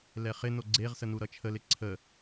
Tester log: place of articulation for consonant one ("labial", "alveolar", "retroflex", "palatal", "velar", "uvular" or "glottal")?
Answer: alveolar